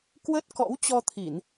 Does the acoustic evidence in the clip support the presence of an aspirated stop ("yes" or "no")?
yes